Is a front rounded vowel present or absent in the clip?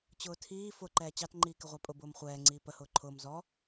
absent